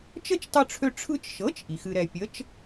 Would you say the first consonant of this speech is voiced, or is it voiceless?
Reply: voiceless